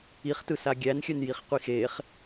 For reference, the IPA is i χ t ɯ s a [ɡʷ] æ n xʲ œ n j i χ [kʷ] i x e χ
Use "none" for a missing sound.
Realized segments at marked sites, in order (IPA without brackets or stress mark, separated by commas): ɡʲ, qʷ